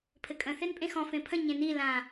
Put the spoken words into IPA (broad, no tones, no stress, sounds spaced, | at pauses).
pʰ ɘ kʼ ə̃ θ e n pʼ ẽ x ɔ̃ f ẽ pʰ ə̃ ɲ ẽ n i l ã